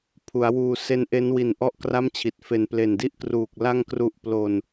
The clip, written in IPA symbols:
pʰ u˩˦ a̯ w uː˧ s e˦˥ n ʔ e˦˥ n w i˨˩ n ʔ ɔ˥˩ ʔ k r a˥˩ m t͡ɕʰ i˨˩ t̚ f e˨˩ n p l e˨˩ n d i˥˩ ʔ k r uː˨˩ k̚ l a˧ ŋ k r u˨˩ ʔ p l o˧ n

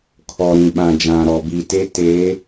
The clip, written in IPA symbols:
kʰ ɔ˨ ɾ ĩ˨ ɓ ã˨ d͡ʒ ã˨ ɾ ɔ˨ b i˨ t e˦ t eː˨˦

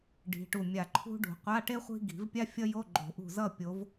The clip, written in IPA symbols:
ɖ i̤˨˦ ʈ u˧˩ mʲ a˧˩ ǃʰ ṳ˥ ɖ ṳ˨˩˦ qʷ a˧˥˧ ʈ e˥ χʷ i̤˥ ɡ i̤˨˩˦ v pʲ a˥ fʲ ʌ˥ j o˧˥˧ ɡ͡ǃ o̤˨˩˦ ʔ ṳ˧˩ z ʌ˥˨ pʲ o˨˦ v

